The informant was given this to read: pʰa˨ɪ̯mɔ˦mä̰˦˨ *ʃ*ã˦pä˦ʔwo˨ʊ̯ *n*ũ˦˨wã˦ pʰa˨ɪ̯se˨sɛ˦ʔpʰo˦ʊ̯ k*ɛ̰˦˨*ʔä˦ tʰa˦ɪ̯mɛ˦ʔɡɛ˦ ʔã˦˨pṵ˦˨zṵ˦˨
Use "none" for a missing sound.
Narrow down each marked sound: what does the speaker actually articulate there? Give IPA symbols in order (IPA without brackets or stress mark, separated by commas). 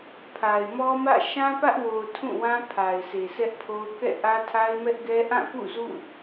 ʃ, tʰ, ɛ̰˦˨